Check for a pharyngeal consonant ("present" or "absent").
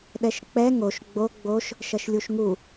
absent